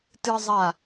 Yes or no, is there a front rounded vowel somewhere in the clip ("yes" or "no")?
no